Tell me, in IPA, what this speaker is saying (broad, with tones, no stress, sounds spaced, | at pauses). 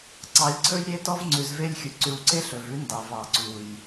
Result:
ǀ ɑ˨ lʲ ǀʰ ɵ˦ j ɾʲ e˦ t ɔ˦ v ŋ͡ǀ ʉ˨ z v e˦ lʲ xʲ u˨ ǀ ʉ˨ w ǀ e˦ ɬ ɵ˨ v ʉ˦ n d ɑ˨ v ɑ˨ ǀ u˨ j